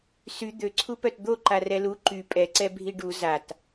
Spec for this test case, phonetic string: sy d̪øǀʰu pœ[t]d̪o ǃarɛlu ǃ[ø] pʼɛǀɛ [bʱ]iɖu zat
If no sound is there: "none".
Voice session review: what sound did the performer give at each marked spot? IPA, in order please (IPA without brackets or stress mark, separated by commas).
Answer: t, y, bʱ